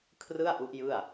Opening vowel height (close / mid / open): close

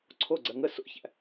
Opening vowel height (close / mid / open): mid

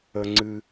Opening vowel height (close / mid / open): mid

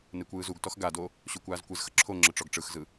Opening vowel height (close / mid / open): mid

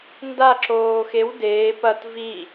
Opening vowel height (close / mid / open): open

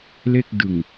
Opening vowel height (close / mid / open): mid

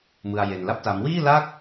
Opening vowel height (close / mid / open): close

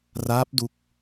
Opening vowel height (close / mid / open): open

